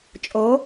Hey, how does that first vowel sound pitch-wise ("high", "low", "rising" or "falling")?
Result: rising